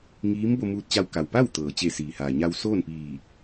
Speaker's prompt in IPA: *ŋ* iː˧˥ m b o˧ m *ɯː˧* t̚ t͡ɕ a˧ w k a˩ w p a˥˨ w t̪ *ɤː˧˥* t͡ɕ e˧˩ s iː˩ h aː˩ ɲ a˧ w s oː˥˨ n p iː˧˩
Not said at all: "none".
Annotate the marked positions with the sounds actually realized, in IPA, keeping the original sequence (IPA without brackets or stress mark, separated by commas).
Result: ŋ, uː˧, ɤː˩